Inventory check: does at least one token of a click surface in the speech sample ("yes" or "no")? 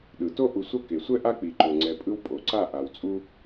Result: yes